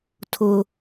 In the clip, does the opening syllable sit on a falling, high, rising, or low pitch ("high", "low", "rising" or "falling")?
high